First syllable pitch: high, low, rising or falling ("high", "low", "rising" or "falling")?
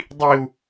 high